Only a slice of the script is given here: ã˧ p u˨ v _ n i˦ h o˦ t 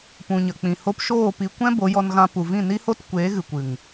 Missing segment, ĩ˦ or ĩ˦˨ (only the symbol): ĩ˦˨